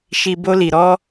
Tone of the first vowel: high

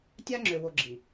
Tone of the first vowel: high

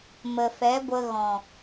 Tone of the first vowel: low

